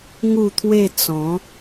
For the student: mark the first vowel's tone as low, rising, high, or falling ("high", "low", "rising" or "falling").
falling